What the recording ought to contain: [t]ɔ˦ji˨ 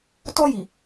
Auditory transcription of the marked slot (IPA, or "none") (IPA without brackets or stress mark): t